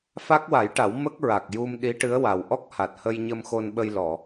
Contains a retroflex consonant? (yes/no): yes